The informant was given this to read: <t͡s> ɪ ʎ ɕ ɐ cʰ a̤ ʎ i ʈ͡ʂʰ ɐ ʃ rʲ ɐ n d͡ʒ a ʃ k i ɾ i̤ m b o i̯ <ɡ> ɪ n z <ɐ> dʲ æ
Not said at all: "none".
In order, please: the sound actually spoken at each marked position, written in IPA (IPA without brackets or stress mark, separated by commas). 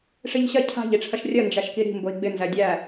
ʂ, ɡ͡b, æ